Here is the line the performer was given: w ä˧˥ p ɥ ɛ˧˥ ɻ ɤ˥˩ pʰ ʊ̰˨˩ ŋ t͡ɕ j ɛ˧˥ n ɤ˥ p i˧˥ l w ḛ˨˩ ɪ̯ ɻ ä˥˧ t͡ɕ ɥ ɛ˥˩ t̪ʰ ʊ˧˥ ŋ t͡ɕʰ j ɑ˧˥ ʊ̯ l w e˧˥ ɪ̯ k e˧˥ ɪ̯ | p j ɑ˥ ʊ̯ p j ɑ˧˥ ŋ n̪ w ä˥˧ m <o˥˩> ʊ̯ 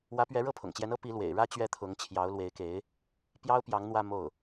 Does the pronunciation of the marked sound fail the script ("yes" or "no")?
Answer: no